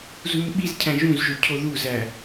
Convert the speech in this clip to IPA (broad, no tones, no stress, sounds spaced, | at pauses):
z u ɲ ɓ i z cʰ æ̃ ʒ ũ z ʒ o cʰ o ð u z æ